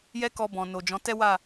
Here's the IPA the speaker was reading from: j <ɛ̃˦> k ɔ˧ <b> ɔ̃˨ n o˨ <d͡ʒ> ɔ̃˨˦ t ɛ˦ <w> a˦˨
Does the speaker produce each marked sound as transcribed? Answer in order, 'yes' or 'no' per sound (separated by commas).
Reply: no, yes, yes, yes